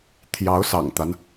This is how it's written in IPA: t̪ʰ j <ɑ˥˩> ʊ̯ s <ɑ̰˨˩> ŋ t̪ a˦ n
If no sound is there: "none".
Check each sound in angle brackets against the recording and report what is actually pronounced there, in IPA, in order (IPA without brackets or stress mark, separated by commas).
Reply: ɑ˧˥, ɑ̰˨˩